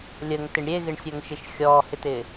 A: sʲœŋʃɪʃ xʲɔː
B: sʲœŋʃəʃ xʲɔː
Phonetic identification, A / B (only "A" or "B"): A